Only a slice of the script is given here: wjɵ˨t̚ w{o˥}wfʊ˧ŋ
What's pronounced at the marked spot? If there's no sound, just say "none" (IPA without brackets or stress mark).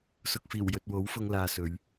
o˨˥